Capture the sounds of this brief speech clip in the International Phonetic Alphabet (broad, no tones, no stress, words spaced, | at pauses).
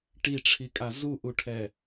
ʈiʈ͡ʂʰikʼa zuʔuʈʰɛ